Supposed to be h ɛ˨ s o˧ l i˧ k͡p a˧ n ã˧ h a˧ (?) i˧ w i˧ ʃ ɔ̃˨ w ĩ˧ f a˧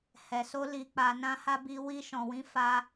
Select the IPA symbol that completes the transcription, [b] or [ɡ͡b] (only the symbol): b